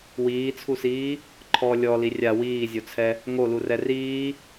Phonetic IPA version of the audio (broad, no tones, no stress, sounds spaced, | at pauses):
w iː t͡sʰ u s iː | ǃʰ ɔ lʲ ɔ l i rʲ a w iː zʲ o t͡sʰ ɛ | ŋ o l u r ɛ r iː